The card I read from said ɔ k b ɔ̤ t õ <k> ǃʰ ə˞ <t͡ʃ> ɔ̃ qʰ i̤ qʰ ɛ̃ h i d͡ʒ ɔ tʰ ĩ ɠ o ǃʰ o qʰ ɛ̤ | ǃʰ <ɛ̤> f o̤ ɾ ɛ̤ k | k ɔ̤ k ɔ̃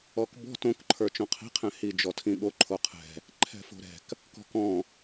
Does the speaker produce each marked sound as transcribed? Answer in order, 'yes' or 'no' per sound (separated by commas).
yes, yes, yes